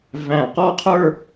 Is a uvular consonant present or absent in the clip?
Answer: present